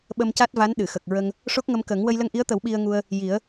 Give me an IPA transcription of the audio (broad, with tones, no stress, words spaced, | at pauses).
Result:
ɓə˧mca˦˥t̚va˧˥n ɗɨ˨˩˨xə˨˩k̚ɹə˧ŋ | ʂo˦˥k̚ŋə˧m kə˨˩˦ŋ wə˧jlə˧ŋʔi˧˥ə̯t̪ə˨˩˦w ɓi˧ə̯ŋu˧ə̯ | ji˨˩˦ə̯